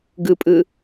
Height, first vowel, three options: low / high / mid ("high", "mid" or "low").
high